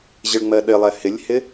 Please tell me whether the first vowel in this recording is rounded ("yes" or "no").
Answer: no